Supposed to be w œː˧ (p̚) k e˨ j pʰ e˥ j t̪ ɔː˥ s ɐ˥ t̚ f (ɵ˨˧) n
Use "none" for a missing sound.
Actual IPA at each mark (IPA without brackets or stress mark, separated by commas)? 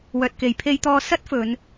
t̚, ɵ˨˧